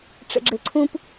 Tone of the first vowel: low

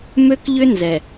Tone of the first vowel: high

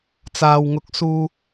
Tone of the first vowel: low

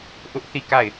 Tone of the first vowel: high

